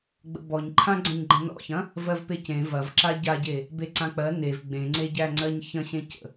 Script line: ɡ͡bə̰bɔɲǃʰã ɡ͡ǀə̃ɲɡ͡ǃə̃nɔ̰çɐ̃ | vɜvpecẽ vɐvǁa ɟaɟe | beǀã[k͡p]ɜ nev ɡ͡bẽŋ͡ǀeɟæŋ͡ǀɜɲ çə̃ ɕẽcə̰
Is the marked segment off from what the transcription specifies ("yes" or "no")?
no